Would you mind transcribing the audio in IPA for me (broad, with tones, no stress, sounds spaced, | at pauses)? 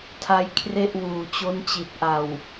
tʰ a˦˥ j kʰ r e˥˩ ʔ w uː˨˩ t͡ɕ o˦˥ n t͡ɕ i˨˩ t̚ ʔ a˨˩ w